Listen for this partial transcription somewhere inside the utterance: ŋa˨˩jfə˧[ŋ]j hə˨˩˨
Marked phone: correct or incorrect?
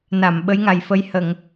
incorrect